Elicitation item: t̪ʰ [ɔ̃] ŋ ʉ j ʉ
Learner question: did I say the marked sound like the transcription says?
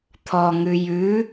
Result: no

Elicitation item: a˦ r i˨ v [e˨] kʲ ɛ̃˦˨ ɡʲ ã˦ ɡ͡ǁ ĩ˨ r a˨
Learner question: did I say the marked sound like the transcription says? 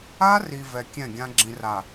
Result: no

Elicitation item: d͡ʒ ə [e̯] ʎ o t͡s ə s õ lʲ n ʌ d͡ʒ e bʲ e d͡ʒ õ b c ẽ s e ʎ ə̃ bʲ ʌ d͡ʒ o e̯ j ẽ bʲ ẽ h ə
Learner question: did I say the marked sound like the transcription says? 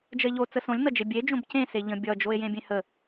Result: yes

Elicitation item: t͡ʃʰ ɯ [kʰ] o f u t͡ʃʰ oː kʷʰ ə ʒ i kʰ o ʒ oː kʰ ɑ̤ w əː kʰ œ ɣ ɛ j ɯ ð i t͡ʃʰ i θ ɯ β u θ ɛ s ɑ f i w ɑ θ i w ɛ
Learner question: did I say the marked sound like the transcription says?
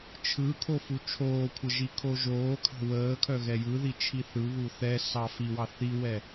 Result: yes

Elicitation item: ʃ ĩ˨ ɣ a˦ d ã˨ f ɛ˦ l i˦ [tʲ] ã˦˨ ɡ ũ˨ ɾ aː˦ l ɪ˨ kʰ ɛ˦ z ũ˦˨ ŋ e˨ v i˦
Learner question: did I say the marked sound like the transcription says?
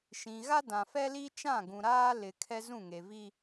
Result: no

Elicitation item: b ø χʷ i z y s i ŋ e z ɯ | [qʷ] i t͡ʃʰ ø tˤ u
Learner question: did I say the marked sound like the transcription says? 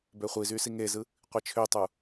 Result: yes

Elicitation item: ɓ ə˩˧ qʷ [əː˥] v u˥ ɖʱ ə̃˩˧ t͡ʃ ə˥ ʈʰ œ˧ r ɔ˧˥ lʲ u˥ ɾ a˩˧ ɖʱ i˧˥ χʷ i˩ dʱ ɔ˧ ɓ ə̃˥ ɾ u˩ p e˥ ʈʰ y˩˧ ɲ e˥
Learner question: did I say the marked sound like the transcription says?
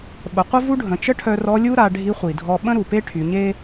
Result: no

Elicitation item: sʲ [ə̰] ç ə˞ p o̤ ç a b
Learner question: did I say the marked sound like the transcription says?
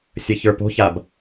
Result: no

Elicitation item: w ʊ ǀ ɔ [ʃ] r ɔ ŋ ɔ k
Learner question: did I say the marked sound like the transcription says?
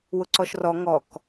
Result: yes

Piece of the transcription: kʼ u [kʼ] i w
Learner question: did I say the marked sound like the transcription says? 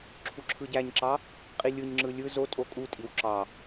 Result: no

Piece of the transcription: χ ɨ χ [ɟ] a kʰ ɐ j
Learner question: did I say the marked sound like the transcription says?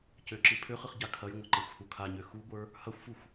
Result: yes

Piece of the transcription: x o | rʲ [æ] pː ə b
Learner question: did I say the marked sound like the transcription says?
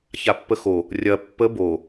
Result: no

